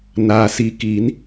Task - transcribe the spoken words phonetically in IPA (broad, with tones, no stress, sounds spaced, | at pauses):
n aː˩ s i˩˧ k i˩˧ n